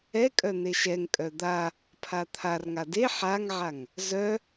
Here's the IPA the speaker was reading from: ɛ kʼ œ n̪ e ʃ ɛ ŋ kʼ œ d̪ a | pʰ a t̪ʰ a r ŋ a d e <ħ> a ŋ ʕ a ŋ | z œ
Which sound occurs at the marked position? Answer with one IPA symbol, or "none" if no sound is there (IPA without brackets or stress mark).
ħ